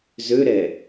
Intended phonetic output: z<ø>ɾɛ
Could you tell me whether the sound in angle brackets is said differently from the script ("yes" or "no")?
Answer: no